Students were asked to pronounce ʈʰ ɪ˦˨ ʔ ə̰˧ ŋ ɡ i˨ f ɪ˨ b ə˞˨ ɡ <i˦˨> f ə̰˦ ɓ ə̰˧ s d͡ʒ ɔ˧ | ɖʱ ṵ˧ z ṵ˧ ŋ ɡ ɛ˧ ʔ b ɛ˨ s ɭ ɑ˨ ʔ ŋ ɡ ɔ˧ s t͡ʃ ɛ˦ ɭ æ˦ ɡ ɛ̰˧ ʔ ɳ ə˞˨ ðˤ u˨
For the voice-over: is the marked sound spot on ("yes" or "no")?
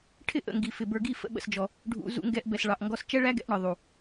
yes